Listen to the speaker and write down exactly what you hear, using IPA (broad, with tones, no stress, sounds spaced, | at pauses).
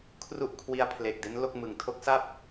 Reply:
kʰ r u˥˩ ʔ kʰ w i˦˥ a̯ pʰ l e˨˩ k̚ d e˦˥ n l o˥˩ k̚ m ɯ˨˩ ŋ tʰ o˦˥ k̚ s a˥˩ p̚